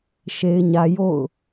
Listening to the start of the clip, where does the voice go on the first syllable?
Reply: high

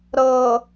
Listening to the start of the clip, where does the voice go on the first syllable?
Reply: low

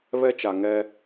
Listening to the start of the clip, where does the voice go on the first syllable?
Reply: high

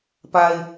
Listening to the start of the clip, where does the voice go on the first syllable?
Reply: low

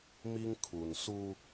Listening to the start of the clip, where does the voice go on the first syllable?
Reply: high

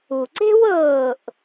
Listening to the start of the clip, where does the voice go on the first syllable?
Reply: low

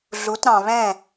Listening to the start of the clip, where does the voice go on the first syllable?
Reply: rising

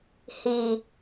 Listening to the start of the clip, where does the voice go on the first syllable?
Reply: low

